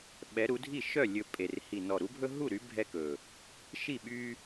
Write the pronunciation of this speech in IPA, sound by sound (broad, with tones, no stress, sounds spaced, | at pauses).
ɓ ɛ˨˥ ɾ u˨˥ dʱ i˥˩ ʃ œ˥˩ lʲ ɵ˨˩ pʼ e˨˩ r h i˨˩ n ɔ˨˩ ɾ u˨˥ bʱ ɵ˦ ɦ u˥˩ ɾ y˨˥ bʱ ɛ˦ k ɵ˨˩ | ʃ i˥˩ ɓ y˦